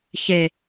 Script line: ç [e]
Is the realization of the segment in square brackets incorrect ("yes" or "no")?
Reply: no